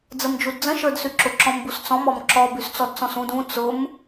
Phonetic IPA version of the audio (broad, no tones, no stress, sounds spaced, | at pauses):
d͡z ə m d͡ʒ u d d͡z ə̃ ʃ ə˞ d s y ǁ ʊ ǁ ɔ̃ m b u s t͡s ɔ̃ m ɔ m ǁ ɔ b y s t͡s ɔ d t͡s ɔ̃ s ũ d ũ t͡s ʊ m